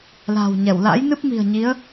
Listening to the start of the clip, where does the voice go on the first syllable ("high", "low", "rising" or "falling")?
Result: low